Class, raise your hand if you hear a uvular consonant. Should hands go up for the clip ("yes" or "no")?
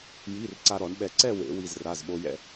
no